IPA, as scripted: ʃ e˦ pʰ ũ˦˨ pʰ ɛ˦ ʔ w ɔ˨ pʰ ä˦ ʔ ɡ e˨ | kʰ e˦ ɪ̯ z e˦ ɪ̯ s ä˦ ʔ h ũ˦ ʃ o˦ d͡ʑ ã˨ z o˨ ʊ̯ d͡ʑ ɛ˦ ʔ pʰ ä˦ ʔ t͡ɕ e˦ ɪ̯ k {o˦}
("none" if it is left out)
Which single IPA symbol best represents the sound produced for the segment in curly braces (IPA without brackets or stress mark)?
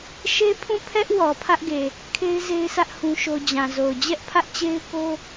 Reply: o˦